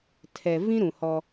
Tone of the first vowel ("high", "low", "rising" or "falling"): low